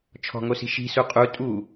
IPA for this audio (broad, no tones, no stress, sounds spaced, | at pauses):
t͡ʃʰ ɔ̤ ŋ o s i̤ ʃ i̤ s u qʼ u tʼ u